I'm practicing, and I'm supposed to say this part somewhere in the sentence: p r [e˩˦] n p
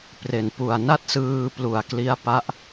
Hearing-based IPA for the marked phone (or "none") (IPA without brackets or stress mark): e˨˩